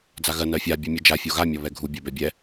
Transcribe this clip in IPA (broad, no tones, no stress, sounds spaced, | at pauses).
d͡z a ɣ ɜ n ɜ fʲ a bʲ ɛ mʲ e d͡ʒ a fʲ o ɣ a mʲ ɔ β ɛ ɡʱ u bʲ ɜ b ɛ bʲ ɛ